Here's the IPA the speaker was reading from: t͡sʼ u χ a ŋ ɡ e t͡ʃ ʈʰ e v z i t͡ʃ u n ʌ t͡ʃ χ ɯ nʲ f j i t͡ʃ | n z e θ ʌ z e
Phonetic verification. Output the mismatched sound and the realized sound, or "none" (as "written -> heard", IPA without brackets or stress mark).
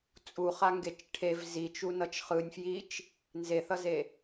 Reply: none